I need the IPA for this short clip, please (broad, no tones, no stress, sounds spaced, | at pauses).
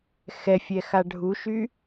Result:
x ɛ fʲ ɛ x a ɖʱ u ʃ y